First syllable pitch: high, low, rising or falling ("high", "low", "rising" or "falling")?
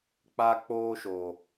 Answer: high